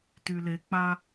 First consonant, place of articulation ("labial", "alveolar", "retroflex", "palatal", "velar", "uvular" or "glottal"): alveolar